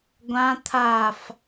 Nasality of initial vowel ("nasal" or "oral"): nasal